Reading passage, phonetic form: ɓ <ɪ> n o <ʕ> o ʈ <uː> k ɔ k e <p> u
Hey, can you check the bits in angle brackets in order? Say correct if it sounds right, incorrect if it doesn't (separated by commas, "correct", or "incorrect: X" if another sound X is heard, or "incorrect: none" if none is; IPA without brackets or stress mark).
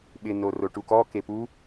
correct, incorrect: r, incorrect: u, correct